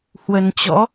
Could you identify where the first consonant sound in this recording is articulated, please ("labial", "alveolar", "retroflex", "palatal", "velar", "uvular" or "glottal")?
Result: glottal